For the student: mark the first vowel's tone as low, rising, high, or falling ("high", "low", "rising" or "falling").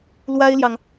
high